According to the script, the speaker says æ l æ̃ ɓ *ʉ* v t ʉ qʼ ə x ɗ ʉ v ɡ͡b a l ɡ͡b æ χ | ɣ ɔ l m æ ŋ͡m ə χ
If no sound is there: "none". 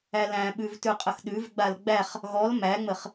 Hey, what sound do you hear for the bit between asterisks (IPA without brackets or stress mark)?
ʉ